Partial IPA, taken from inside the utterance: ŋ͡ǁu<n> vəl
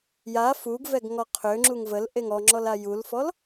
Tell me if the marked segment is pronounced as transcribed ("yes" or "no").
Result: no